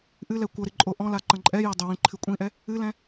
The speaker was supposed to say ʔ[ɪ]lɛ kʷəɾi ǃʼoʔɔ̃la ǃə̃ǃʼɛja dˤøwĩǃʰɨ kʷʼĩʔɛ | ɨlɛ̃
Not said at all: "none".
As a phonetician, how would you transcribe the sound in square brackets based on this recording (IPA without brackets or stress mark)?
ɨ